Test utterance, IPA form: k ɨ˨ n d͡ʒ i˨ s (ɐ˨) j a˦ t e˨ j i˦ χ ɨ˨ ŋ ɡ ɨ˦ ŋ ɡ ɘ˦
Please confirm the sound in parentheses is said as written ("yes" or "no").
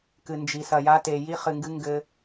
yes